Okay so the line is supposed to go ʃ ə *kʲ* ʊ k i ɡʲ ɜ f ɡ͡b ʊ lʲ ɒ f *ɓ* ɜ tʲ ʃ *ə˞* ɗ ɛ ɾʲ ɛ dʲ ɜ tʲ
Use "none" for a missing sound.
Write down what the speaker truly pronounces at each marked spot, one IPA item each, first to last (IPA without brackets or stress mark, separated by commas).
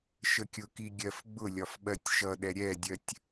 kʲ, ɓ, ʌ